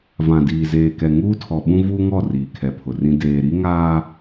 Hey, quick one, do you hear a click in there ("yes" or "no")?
no